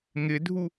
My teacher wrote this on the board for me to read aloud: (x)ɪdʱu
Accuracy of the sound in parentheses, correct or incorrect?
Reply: incorrect: ŋ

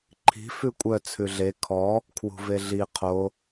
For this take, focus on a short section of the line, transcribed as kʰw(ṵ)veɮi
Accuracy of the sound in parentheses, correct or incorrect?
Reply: incorrect: ṳ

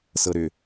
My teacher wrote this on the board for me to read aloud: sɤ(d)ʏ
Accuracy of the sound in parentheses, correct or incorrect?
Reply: incorrect: ɾ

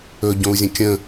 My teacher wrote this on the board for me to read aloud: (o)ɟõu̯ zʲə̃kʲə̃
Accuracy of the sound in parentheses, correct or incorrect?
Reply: incorrect: ɵ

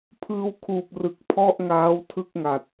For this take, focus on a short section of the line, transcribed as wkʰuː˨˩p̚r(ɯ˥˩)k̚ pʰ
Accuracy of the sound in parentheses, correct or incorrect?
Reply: incorrect: ɯ˨˩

